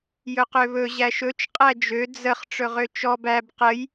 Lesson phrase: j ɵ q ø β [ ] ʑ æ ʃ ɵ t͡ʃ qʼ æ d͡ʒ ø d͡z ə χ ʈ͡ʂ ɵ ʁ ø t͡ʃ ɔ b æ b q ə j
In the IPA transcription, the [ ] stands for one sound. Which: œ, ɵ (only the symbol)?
ɵ